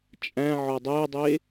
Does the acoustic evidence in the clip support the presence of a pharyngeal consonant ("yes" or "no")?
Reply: yes